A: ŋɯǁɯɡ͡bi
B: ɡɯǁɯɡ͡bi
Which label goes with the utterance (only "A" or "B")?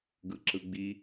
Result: B